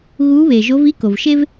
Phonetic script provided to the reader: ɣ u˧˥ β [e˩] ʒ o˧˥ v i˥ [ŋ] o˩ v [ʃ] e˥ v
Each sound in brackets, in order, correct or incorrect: correct, incorrect: k, correct

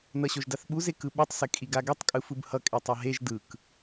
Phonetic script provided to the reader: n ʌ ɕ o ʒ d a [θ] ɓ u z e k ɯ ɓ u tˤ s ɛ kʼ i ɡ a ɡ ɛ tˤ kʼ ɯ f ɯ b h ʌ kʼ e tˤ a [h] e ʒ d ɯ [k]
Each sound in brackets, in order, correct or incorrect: correct, incorrect: ɦ, correct

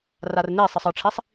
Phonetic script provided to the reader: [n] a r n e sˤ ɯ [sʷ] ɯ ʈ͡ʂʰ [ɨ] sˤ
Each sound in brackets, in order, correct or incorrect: incorrect: r, incorrect: sˤ, incorrect: i

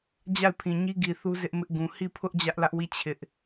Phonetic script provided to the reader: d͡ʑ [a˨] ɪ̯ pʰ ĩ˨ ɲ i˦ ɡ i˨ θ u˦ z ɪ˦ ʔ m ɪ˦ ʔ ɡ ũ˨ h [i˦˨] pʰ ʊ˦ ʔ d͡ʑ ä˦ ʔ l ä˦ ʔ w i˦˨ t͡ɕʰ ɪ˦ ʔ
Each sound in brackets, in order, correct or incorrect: incorrect: a˦˨, correct

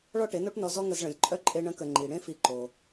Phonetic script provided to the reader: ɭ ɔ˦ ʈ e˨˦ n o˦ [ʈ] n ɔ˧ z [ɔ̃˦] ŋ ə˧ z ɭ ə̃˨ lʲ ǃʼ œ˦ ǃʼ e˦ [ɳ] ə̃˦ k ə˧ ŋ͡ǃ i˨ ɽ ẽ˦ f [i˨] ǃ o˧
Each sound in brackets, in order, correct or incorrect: correct, incorrect: ɔ˦, correct, incorrect: i˧

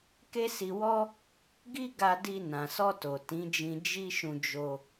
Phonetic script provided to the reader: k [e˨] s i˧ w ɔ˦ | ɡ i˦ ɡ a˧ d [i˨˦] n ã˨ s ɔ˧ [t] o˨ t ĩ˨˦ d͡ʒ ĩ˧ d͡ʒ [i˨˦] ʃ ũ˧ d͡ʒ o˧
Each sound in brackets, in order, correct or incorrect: incorrect: e˦, incorrect: i˧, correct, incorrect: i˦

